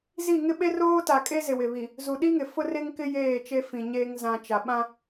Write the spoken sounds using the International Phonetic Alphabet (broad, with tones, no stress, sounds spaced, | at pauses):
z i˦˨ ŋ ɪ˦ ɓ e˦ r oː˦ t a˨ kʼ e˦ z ɪ˨ w ɪ˨ β i˨ | z u˨ ɗ i˦ ŋ ɪ˨ f ʊ˦ r e˦ ŋ k ɪ˦ j eː˦˨ t͡ʃ e˦ f ĩ˨ ɲ eː˦ ŋ z ã˨ t͡ʃ a˨ ɓ ã˦